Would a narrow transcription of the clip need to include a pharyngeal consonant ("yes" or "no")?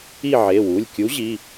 yes